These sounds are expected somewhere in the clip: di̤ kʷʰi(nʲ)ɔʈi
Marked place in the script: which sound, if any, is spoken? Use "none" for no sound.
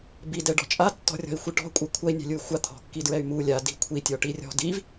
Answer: tʲ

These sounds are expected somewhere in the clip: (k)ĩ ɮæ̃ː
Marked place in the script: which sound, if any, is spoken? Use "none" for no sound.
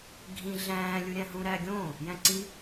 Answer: ɡʱ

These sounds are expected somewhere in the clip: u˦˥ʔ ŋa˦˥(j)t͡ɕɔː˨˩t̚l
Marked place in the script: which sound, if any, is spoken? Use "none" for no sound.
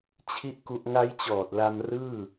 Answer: j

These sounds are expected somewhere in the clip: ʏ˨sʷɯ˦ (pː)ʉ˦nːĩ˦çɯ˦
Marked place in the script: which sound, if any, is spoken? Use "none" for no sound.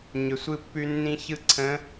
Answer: pː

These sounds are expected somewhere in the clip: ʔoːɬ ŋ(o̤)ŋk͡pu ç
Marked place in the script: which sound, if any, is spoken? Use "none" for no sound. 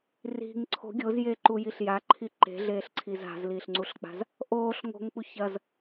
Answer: o̤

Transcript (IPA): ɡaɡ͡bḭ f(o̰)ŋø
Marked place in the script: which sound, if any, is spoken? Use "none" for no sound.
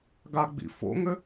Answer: o̰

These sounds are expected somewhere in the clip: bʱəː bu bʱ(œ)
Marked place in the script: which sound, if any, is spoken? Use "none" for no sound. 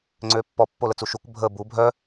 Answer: œ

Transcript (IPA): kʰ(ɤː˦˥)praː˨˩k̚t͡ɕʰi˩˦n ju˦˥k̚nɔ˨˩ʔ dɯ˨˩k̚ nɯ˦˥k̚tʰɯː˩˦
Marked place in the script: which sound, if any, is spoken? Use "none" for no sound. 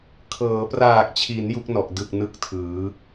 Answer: ɤː˩˦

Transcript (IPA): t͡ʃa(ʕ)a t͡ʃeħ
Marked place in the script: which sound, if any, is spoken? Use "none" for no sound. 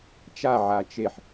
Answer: ʕ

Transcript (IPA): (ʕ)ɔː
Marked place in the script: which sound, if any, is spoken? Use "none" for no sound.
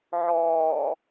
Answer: ʕ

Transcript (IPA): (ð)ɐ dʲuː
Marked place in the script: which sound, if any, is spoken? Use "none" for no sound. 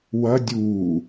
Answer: w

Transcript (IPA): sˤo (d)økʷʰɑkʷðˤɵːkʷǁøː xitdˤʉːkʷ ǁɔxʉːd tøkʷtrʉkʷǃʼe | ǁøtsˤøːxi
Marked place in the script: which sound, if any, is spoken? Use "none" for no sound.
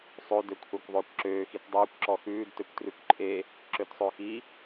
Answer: d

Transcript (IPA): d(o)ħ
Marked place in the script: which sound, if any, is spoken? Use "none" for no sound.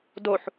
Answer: o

